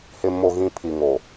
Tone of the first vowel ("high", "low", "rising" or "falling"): low